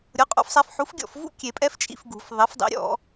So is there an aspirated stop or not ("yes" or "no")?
no